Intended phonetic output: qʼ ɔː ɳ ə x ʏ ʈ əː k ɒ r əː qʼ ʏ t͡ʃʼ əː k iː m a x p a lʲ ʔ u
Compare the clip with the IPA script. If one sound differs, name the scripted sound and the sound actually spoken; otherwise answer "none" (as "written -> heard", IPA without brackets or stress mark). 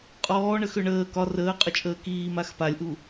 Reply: ʈ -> ɳ